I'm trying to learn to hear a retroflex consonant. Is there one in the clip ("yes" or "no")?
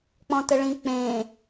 yes